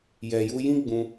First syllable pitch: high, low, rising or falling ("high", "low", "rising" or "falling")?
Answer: low